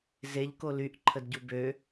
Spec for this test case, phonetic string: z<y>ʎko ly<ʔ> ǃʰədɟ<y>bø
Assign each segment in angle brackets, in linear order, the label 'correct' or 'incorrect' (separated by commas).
incorrect, correct, incorrect